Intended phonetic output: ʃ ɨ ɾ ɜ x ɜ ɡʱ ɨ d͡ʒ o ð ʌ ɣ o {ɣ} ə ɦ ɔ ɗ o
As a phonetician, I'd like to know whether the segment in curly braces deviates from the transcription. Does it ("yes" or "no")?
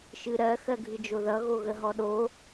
no